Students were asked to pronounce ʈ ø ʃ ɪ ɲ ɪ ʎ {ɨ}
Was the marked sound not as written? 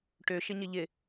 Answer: yes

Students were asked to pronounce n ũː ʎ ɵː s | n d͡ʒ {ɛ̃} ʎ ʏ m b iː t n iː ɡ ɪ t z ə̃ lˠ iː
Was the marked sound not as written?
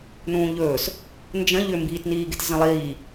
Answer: yes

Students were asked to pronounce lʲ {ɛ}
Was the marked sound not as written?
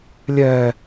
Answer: no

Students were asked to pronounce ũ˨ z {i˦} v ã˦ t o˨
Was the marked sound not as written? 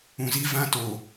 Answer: no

